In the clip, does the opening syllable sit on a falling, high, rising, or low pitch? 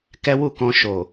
high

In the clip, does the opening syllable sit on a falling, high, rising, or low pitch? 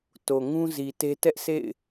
low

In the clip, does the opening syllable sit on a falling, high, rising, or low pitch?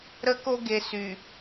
high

